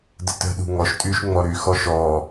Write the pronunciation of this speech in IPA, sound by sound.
dətə̤ɗṳ ŋɔʃtʼyʃ ŋ͡mɔɾyxɔ ʃɔ

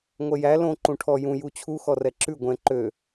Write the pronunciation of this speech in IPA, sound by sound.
ŋʷɛjæ lõ ǃũʈʰɔ jũ jut͡ɕʰu xɔrɛǁʉ ɡʷɛ̃ ǃø

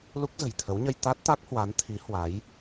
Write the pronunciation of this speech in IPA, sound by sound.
lu˦˥k̚zə̤˨˩jt̪ʰə˨˦wɲə˧j t̪a˦˥t̚t̪a˦˥k̚hwa˨˦n t̪ʰi˨˦hwa˨˦j

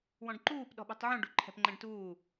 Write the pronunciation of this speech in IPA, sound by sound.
wɔ̃ɖǃuːp ɗɔ̤ɓṳtˤʕũɖ ṳǃʰɛ̤pŋ͡ǃɛ̃ɖtuː

